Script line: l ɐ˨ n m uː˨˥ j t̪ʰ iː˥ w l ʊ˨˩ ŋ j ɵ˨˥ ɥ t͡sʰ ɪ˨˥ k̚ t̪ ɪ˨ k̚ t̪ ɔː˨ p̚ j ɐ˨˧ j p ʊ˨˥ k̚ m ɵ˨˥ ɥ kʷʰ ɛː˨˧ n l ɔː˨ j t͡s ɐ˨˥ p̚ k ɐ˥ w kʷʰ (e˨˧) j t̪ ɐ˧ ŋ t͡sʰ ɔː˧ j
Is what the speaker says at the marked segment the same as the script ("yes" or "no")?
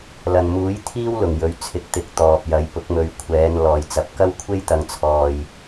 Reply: no